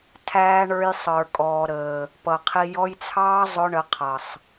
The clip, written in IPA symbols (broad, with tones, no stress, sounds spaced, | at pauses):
tʰ æː˧ ɳ ə˞˧ j sˤ ə˞˨ kʼ ɔː˨ ɾ əː˨ | p ʌ˨ qʰ i˧ j ɔ˧ j t͡sʰ ɑː˦ zˤ ʊ˦ ɳ ə˨˦ qʰ ʌ˨ sˤ